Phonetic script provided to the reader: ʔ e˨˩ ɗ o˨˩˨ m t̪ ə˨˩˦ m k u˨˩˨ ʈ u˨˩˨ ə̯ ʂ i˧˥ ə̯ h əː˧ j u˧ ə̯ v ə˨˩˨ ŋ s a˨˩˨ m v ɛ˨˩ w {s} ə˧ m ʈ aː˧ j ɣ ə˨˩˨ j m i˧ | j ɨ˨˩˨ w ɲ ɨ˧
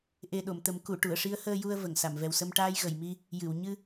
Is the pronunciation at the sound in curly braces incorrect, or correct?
correct